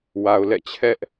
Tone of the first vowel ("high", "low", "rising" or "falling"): low